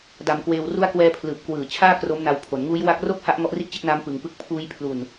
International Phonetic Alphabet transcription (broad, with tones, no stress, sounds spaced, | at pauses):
d a˧ m k w eː˧ w r u˦˥ a̯ k w ɛː˧ pʰ l ɯː˨˩ p̚ k w ɯː˨˩ t͡ɕʰ aː˥˩ k r o˦˥ m n a˧ w pʰ o˩˦ n ŋ uː˦˥ j w a˦˥ k̚ r o˥˩ k̚ h a˦˥ ʔ ŋ ɔ˦˥ ʔ r i˥˩ ʔ t͡ɕ e˥˩ k̚ n aː˦˥ m p ɯ˧ ŋ p ɯ˦˥ k̚ pʰ uː˦˥ j pʰ l u˧ n